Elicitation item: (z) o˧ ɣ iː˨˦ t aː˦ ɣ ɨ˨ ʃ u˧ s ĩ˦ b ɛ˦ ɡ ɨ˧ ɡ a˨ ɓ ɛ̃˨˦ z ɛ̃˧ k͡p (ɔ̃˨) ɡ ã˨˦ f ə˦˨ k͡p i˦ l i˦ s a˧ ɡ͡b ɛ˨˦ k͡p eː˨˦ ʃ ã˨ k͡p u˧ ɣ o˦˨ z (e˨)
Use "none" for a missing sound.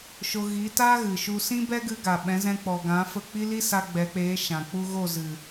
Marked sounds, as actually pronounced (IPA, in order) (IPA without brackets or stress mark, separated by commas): ʃ, ɔ˨, ɨ˨